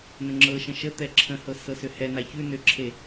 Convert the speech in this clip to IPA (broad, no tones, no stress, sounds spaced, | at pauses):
n ə̃ ŋ͡ǁ ɤ ʃ ə̃ ʃ ə t̪ ɛ ǁʰ ə̃ h ɤ s ɤ s ʏ h ɛ n a ç ʉ n ʏ ǁʰ e